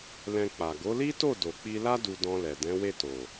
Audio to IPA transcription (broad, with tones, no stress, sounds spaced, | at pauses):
l ɛ̃˧ k͡p a˨ ɡ o˨˦ l i˦ t o˦˨ d o˨ k͡p i˧ l a˦ d u˧ d ɔ̃˧ l ɛ˨ d ɛ̃˨˦ w e˦˨ t o˨